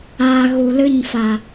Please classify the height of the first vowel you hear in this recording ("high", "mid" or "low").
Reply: low